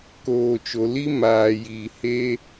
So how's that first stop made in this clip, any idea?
plain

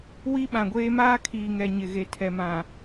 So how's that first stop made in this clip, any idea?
implosive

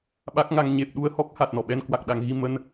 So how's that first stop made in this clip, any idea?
implosive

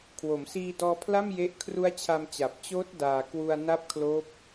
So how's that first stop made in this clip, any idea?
aspirated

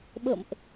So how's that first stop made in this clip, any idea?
implosive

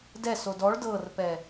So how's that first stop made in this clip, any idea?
plain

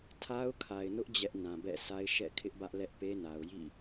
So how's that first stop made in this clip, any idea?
aspirated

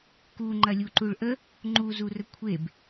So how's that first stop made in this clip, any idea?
plain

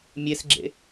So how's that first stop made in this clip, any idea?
click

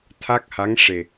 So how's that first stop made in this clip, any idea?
aspirated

